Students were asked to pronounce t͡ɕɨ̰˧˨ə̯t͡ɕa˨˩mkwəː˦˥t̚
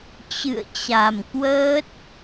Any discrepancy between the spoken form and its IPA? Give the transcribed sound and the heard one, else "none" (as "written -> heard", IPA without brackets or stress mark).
none